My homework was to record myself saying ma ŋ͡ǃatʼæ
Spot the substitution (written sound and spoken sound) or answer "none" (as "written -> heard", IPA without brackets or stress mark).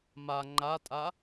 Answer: æ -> a